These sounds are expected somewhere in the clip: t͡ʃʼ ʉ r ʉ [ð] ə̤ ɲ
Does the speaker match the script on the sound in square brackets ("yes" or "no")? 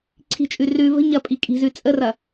no